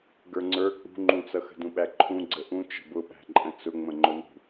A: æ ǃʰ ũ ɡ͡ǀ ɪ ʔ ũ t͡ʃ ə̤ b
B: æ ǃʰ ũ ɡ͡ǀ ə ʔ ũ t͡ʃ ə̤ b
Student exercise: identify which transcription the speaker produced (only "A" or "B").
B